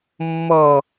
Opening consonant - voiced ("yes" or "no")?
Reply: yes